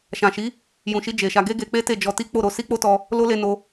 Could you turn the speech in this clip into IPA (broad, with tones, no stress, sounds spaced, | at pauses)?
ʃ ã˨ ʃ i˨˦ | j ũ˨ ʃ i˧ d͡ʒ e˨ ʃ a˧ ɡ e˦ ɡ e˧ k͡p e˦ t e˦˨ d͡ʒ ɔ˧ t i˦ k͡p o˦˨ ɾ o˧ s i˦ k͡p o˦ t ɔ˧ | l o˦ l e˧ n o˧